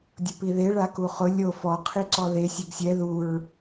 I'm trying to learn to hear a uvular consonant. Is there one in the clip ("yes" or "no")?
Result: yes